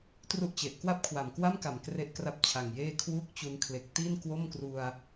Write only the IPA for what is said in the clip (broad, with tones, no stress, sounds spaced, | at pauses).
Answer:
t r u˥˩ ʔ t͡ɕ e˨˩ ʔ k w a˥˩ p̚ kʰ w a˨˩ m k w a˥˩ m k a˨˩ m k r e˥˩ ʔ k r a˥˩ p̚ t͡ɕʰ a˨˩ ŋ j eː˥˩ kʰ w uː˥˩ k̚ t͡ɕ u˧ n kʰ l e˨˩ k̚ t iː˥˩ n k w o˥˩ m k r u˧ a̯